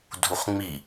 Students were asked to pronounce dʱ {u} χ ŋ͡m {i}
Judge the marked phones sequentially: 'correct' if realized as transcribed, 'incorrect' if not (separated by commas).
correct, correct